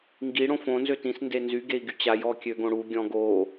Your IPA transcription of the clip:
ŋ ɡ i ɽ õ f õ n z ø t ĩ s n d e n z y ɡ e i̯ ɡ y t͡ɕ a j ɔ kʲ ø ɡ õ ɽ u ɡʲ ɔ̃ ɡ o

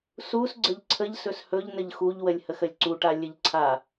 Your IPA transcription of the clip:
s u s ɡ͡ǀ ə ʎ ǀʰ ə ʎ s ɵ s h ɵ ʎ n ə ʎ x u ʎ w ə lʲ h ə x ə lʲ ǀ u ʈ a lʲ ə ʎ ǀʰ a

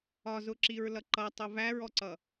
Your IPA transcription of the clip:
ɒ z ʊ ǁ i ɹ l ʌ ǃ ʌ tˤ ʊ v æ ɹ ɔ ǀ ʌ

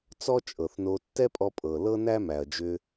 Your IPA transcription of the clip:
t͡s ɔ˥ t͡ʃʼ ɤ˩ θ n o˧ tː ɛ˥ pʼ ɔ˧ pʼ ɤ˩ l ɤ˥ n æ˥ m æ˩ ɐ̯ d͡ʒ ʏ˧

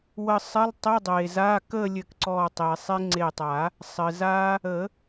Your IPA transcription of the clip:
w ə˧˩ sˤ ɘ˧˥˧ lˠ tˤ ɘ˧˥˧ dˤ e˩ z a˧˥˧ k ə˥˧ lʲ ɘ˧˩ k ǀ ɔ˧˩ tˤ e˩ sˤ e˦˥ ŋ͡ǀ e˧˩ tˤ a˨˩˦ | sˤ ɘ˩ z a˦˥ | ə˨˩˦

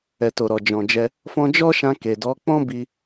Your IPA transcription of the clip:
ɛ˨ t o˨ ɾ ɔ˨ d͡ʒ ɔ̃˨ d͡ʒ ɛ˧ | f ɔ̃˧ d͡ʒ ɔ˦ ʃ ã˧ k e˨ d ɔ˨˦ k͡p ɔ̃˦ b i˧

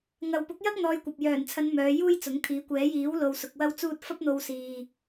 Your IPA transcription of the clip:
ŋ ɐ˨ w p ʊ˨˥ k̚ j ɐ˥ k̚ n̪ ɔː˧ j kʷ ɐ˨ p̚ j œː˨˩ n t͡sʰ ɐ˨˧ n m œː˨˧ j uː˥ j t͡s ʊ˨˥ ŋ t̪ʰ iː˨˥ kʷ ɛː˨˥ j iː˨˥ w l o˨ w s ʊ˧ k̚ w ɐ˥ w t͡s uː˥ t̚ f ɐ˥ p̚ n̪ o˧ w s iː˨

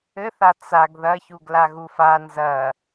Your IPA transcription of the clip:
ɘ θ a t͡s a ɡ ð ɐ ç u ɡ l a ɣ u f a n z ɐ

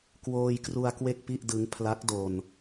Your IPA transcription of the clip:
k w oː˧ j k r u˧ a̯ k w e˥˩ k̚ p i˥˩ ʔ d ɯ˦˥ ŋ pʰ l a˦˥ k̚ d o˧ n

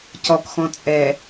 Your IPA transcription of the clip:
c ɔ k x ɔ̃ t͡sʼ ɛ

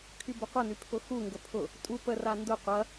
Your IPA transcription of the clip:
kʰ y b ə qʷ ɐ n y pʰ ʊ x u ŋ ɡ ə pʰ ʊ | tʼ u p ə r a n d ʊ qʷ ɐ

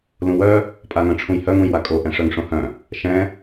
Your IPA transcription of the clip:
l ũ w œ | pʼ a ŋ œ̃ ʈ͡ʂʰ ũ j h œ ŋ ũ j w a kʼ o ʔ ɛ̃ ʂ œ ŋ ʂ õ h œ̃ | ʃ ɛ̃

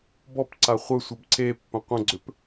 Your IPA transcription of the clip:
b ɔ p ǀ a χʷ ə sʷ ə b ǀ e pː ə̃ qʷ ə̃ ɡ͡ǀ ʏ p

